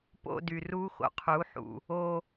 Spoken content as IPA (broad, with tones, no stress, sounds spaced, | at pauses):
p o̰˧ d y˨ r u˦ x o̰˨ qʰ u˨˦ ħ ṵ˨ | o˧